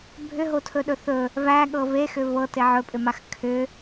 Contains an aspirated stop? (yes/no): yes